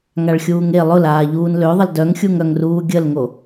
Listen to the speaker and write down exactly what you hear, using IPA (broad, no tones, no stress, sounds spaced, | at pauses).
ŋ a ɭ xʲ uː ŋ e lˠ ʊ l aː ʎ uː n l ø ðˤ ə l d œ ŋ xʲ u ŋ œ ŋ r uː ɡʲ ə l ŋ o